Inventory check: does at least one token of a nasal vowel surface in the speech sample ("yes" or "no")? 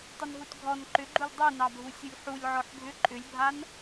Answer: no